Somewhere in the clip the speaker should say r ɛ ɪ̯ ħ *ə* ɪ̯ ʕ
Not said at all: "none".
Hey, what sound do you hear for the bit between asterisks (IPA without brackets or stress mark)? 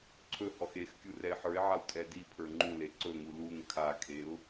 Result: ə˞